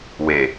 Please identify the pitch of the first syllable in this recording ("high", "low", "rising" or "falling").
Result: low